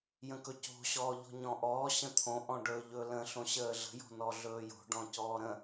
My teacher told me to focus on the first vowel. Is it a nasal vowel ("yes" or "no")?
yes